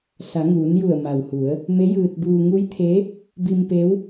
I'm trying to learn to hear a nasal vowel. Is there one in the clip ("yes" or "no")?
no